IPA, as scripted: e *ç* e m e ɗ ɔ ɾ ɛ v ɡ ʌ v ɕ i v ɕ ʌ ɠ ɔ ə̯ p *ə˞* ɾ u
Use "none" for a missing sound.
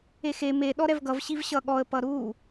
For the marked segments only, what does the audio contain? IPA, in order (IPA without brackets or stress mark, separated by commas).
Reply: x, ʌ